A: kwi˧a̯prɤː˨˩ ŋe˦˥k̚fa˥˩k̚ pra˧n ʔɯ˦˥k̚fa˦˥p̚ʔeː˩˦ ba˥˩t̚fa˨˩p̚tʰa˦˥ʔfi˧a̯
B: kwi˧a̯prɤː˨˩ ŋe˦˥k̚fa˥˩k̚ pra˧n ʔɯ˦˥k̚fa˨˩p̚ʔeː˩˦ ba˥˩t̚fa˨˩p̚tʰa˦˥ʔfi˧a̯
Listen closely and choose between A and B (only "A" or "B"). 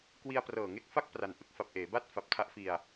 B